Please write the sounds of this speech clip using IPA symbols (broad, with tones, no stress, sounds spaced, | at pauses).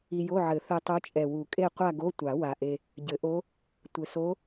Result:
i˧ j o˧˥˧ ʕ ɘ˨˩˦ θ ɛ˧ tˤ o˧˥ t͡ʃʼ ɛ˨˩ w u˨˩˦ kʼ e˥˧ qʷ a˥˧ ɡ o˧˥˧ tʷ a˨˩˦ w a˨˩ ʔ e˧ | ɟ ɘ˨˩˦ ʔ o˧˥ | tʷ ɘ˨˩ s o˧˥